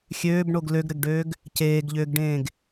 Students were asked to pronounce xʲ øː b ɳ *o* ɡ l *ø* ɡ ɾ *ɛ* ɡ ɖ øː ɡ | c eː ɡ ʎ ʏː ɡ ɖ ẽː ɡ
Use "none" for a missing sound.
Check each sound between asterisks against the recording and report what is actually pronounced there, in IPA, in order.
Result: o, ø, ɘ

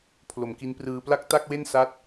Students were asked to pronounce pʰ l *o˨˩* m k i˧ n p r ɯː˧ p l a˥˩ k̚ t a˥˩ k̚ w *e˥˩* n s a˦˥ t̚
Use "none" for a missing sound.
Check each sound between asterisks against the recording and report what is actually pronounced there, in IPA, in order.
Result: o˨˩, e˥˩

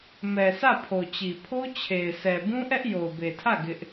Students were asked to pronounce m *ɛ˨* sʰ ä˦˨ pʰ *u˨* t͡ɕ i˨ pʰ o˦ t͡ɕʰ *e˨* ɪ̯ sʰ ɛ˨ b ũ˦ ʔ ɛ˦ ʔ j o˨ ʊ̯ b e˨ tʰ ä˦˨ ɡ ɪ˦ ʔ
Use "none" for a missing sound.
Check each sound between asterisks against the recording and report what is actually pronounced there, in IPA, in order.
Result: ɛ˨, o˨, e˨

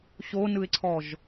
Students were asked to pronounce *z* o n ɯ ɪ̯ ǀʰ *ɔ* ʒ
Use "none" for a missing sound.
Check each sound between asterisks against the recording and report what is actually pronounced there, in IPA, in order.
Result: ɕ, ɔ

